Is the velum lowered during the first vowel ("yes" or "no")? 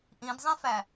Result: yes